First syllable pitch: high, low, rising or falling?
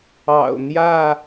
low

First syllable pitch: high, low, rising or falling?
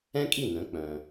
high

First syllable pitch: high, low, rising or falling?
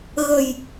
low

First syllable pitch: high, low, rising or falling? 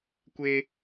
high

